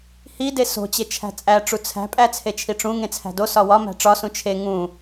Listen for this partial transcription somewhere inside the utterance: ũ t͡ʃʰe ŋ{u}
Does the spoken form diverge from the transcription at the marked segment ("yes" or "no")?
yes